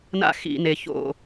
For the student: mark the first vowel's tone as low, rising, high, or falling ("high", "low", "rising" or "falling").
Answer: high